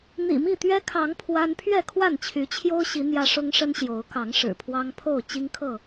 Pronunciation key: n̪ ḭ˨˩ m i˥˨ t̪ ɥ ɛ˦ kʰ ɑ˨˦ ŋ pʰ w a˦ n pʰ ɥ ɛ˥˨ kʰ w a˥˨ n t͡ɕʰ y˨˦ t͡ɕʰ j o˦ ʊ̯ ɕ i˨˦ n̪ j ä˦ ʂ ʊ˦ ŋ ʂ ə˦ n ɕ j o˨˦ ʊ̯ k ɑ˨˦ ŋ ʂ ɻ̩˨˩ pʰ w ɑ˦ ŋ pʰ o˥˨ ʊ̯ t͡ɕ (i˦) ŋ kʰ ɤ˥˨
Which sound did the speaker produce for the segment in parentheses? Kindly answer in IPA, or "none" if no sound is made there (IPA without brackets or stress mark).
i˦